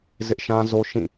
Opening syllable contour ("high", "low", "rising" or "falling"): high